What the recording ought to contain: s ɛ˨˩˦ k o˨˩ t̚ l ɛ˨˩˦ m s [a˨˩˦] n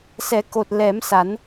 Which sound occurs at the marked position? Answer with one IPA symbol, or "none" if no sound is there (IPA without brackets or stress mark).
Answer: a˨˩˦